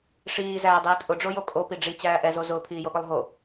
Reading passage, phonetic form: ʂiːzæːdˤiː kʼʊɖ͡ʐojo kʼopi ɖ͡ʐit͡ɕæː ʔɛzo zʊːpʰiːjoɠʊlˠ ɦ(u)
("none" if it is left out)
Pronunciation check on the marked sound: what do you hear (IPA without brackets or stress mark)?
o